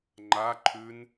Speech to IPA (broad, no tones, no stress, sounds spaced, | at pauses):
ŋ͡ǃ a ǃʰ ʉ n